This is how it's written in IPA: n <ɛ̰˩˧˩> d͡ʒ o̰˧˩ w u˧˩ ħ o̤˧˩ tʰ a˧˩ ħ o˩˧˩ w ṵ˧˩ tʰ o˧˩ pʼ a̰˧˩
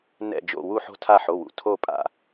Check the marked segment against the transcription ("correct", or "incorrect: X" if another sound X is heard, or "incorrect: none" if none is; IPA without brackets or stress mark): incorrect: ɛ̰˧˩